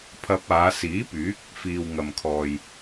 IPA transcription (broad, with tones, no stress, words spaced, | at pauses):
pʰɐ˧p̚aː˨˧ siː˨˥pyː˨˥k̚ | fiː˨wŋɐ˨mkʰɔː˨j